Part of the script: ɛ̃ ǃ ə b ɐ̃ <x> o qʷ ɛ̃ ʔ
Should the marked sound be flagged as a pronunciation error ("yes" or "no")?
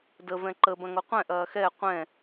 yes